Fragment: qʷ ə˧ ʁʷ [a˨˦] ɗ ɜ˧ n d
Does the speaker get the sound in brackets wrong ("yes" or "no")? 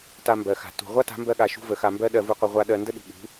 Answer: yes